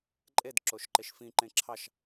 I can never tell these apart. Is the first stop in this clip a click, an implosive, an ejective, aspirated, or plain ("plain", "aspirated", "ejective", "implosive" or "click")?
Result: click